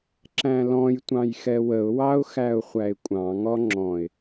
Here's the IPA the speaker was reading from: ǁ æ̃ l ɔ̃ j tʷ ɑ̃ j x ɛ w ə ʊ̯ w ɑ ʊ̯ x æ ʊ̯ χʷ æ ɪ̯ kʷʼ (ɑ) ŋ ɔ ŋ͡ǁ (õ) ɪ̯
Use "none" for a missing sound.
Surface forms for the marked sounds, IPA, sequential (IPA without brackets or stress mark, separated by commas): ɑ̃, ɔ̃